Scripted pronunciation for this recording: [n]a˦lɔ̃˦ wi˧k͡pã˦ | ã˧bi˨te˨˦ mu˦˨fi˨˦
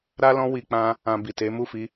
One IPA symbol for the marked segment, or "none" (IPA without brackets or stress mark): ɾ